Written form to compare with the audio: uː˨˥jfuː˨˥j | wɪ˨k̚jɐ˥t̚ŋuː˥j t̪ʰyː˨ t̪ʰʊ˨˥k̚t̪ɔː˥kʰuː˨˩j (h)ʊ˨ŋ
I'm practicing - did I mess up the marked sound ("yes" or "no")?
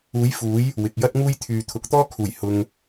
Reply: no